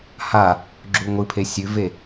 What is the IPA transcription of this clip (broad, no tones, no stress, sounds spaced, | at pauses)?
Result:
h a | ɡ͡ǁ u ŋʷ ɨ pʰ e sʲ ʉ v e